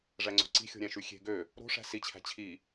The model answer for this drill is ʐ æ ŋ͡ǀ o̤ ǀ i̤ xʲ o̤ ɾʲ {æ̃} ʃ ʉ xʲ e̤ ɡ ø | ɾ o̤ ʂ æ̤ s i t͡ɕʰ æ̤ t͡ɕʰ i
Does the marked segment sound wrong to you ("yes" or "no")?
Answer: no